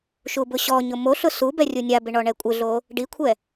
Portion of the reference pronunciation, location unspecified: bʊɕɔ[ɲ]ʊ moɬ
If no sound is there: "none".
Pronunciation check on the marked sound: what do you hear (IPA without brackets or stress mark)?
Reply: ɲ